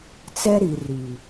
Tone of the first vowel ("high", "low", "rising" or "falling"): high